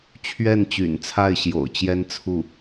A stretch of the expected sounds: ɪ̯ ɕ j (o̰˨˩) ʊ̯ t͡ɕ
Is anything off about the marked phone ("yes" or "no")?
no